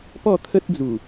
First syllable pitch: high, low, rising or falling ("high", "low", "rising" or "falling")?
falling